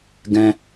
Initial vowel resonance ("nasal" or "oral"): nasal